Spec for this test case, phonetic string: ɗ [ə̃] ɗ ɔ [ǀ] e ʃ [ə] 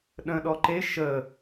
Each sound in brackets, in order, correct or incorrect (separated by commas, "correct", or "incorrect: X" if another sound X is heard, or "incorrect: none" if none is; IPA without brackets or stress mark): correct, incorrect: ǃ, correct